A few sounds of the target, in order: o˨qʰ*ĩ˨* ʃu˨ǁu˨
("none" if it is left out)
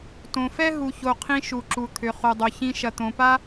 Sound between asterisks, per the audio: ĩ˧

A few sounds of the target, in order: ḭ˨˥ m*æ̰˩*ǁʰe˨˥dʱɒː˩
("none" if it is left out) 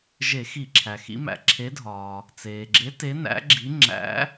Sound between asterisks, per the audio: æ̰˩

